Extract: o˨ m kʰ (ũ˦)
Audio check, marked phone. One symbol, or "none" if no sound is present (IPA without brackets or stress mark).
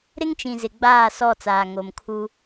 u˦